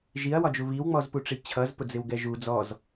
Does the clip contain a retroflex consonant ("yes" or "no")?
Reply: yes